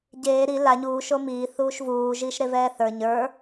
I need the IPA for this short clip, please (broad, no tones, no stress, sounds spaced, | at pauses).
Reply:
ɟ eː ɾ i l a ɲ uː ʃ o m iː θ uː ʃ v uː ʒ iː ʃ ɾ e v ɛː θ ə˞ ɲ ə˞